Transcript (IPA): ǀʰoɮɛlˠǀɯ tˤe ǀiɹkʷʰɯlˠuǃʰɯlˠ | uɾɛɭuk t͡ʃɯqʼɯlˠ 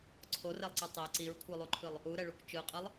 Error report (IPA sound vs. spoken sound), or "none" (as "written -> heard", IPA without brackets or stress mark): ɮ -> r